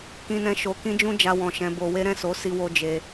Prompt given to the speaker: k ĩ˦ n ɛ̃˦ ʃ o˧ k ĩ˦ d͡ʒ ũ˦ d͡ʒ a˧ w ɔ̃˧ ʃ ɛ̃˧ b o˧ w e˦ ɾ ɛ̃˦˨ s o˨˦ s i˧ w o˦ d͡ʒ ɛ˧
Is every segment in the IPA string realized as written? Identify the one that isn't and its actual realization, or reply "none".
ɛ˧ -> e˧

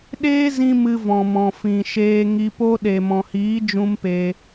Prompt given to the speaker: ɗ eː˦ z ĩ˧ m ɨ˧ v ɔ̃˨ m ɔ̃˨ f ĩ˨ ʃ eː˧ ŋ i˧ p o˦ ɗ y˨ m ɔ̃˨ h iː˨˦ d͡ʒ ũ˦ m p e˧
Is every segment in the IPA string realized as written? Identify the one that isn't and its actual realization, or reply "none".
y˨ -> e˨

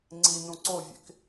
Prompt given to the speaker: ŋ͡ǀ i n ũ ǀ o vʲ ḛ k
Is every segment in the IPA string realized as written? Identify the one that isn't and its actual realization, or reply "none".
none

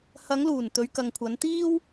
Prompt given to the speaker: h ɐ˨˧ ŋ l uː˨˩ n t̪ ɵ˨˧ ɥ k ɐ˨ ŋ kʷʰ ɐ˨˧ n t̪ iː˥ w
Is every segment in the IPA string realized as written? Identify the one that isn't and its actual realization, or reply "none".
none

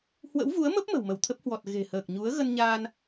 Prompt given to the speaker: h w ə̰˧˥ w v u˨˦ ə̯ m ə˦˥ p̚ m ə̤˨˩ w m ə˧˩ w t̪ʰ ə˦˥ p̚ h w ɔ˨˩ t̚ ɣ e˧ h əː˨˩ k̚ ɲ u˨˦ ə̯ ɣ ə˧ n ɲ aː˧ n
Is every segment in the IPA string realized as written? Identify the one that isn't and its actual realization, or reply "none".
e˧ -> e̤˨˩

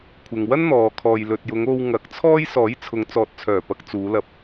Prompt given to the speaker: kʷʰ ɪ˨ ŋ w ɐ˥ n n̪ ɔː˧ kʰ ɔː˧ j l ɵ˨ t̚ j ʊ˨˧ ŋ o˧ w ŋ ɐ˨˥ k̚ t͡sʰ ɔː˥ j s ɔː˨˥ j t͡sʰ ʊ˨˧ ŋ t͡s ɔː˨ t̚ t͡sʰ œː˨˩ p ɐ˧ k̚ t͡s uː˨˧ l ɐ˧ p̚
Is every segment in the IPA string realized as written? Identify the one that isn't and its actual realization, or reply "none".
none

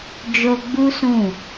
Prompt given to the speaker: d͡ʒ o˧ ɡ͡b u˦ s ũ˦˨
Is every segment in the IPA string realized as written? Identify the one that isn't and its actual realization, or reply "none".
none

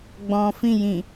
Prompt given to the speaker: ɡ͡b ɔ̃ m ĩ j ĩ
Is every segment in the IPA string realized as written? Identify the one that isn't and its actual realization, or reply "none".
m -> f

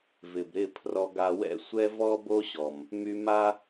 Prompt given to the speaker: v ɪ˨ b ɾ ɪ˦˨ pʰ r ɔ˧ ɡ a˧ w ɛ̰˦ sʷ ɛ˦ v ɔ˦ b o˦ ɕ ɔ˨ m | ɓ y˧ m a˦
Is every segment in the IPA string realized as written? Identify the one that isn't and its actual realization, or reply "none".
ɓ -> m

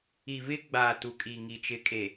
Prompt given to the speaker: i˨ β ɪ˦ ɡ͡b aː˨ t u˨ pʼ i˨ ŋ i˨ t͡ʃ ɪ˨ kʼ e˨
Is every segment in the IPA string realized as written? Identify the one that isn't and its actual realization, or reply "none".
pʼ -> kʼ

